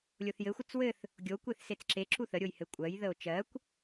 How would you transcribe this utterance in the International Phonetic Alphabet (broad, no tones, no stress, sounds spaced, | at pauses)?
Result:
lʲ o θ j ɘ xʷ ə t͡s w ɘ θ | ɡʲ o kʷ e θ s e t͡s ǁ e ǁ u θ ə ɾʲ o j h ɘ kʷʼ ɜ j ð ə o̯ t͡ʃ ɜ kʷ